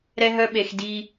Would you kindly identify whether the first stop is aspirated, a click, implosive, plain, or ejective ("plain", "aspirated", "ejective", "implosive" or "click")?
implosive